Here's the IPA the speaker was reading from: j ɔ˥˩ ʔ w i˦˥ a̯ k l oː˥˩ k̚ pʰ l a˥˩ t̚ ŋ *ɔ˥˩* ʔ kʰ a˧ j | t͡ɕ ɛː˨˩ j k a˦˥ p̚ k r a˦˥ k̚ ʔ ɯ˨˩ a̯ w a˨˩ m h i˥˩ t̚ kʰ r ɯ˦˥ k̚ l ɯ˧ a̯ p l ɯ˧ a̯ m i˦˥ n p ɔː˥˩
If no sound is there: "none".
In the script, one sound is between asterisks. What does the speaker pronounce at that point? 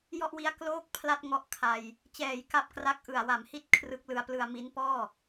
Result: ɔ˥˩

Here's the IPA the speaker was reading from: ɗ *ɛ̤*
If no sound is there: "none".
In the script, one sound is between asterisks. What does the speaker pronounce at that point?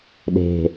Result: e̤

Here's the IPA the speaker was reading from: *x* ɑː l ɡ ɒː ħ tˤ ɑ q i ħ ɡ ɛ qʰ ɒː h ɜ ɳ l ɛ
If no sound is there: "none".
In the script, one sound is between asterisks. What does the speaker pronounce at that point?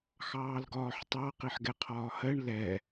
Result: x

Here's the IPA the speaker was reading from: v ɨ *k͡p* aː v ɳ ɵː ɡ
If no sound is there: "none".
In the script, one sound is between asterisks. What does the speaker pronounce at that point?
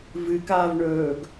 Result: k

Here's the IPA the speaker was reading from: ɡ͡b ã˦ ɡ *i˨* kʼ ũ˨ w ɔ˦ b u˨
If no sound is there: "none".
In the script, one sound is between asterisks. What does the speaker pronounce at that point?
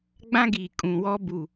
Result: i˨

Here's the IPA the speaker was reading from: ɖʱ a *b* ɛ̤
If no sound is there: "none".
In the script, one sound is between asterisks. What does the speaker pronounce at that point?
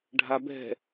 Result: b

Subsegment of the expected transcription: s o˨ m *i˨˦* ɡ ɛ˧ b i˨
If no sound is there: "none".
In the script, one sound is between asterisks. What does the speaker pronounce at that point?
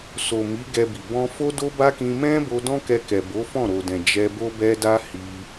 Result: i˨˦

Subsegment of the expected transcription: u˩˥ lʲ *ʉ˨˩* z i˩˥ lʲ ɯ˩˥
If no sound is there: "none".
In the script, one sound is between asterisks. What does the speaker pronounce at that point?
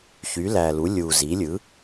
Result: u˨˩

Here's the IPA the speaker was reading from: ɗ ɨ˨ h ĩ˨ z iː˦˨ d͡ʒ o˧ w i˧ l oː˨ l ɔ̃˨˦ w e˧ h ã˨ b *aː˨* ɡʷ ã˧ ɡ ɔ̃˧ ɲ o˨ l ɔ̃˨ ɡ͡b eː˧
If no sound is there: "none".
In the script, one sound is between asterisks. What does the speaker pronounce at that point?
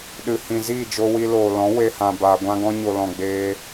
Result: aː˨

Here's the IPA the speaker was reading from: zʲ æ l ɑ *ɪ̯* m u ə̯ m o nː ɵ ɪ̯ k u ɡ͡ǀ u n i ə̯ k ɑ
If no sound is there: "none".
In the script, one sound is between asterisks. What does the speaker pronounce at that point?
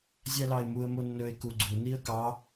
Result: ɪ̯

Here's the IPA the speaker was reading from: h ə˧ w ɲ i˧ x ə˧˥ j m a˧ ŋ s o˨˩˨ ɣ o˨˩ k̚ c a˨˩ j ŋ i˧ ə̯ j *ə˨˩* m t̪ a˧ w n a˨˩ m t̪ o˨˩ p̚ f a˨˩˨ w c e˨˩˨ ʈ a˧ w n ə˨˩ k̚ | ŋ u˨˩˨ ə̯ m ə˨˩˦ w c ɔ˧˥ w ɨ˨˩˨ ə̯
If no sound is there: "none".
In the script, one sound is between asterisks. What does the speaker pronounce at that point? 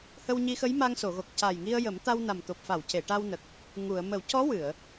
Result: ə˨˩˦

